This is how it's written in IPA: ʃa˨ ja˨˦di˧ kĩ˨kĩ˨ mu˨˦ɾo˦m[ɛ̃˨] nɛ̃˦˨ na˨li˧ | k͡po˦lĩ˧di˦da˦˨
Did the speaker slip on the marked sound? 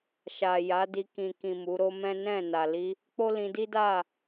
yes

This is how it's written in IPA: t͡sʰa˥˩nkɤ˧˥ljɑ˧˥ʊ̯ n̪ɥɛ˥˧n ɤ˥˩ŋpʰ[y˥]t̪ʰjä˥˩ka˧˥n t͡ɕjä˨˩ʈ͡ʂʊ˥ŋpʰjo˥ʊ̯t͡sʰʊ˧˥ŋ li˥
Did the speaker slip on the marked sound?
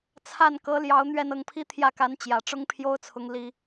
yes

